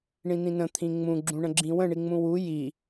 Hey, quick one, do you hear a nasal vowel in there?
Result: yes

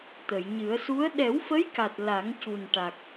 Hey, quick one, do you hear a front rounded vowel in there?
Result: no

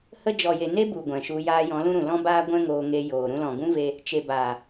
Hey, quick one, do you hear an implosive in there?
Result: no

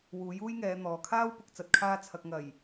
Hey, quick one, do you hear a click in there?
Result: no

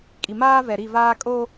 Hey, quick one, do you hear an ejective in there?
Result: yes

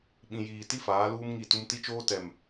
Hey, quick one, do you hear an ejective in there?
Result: no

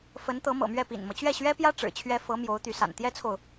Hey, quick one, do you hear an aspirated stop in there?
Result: yes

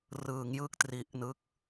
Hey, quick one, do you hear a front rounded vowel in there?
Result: no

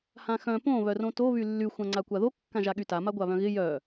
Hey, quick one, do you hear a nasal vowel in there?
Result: yes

